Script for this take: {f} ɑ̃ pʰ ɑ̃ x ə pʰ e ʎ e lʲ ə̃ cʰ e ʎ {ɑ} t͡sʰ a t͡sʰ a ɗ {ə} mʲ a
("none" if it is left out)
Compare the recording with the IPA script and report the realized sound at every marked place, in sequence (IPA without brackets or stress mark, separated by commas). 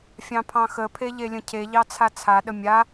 fʲ, ɑ, ə